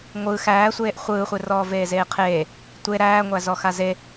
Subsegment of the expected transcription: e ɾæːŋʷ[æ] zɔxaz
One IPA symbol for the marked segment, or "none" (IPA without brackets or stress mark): æ